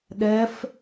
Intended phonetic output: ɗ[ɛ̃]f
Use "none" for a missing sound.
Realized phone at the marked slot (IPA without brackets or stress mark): ɛ